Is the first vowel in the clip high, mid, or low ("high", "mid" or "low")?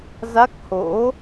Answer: low